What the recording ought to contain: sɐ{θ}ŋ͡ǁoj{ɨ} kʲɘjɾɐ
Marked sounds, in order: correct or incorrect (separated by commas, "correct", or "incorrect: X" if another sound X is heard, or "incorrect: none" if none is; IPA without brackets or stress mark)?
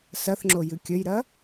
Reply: correct, correct